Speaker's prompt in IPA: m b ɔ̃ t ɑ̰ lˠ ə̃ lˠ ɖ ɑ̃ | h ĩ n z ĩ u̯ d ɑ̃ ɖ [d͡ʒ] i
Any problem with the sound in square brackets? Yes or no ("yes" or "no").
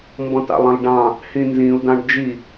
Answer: no